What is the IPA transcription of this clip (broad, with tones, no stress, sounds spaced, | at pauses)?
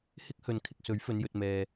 h ɪ˥ k̚ h ɵ˨ n kʰ ɪ˧ k̚ s ɵ˨˥ ɥ f ɵ˨˧ n j ɵ˨ t̚ m ɛː˨